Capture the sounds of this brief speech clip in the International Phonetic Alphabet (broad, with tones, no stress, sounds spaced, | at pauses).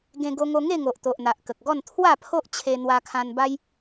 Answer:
ɡ ẽ˧ ɡ o˧ ŋ o˧ ŋ e˥˧ ŋ o˨ ʔ t̪ o˨ ʔ n̪ a˨ ʔ k ə˨ k̚ ɡ ɔ˥˧ n t̪ʰ w a˥˧ pʰ o˦ ʔ t͡ɕʰ e˧ n̪ w a˧ kʰ ã˧ n b a˦ j